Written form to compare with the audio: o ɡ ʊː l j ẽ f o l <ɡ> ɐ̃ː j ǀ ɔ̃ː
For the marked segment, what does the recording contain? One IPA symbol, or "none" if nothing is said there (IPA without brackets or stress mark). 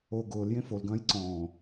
ɡ